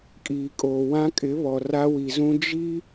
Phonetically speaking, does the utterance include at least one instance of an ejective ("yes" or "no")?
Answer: yes